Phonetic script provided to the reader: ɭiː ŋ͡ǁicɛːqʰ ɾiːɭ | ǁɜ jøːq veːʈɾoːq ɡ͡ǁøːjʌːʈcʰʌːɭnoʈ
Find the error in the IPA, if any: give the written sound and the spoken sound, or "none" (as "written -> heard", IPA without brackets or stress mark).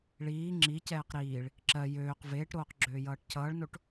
qʰ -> q